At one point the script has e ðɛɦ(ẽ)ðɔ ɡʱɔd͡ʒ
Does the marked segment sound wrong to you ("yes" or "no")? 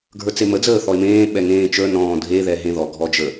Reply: no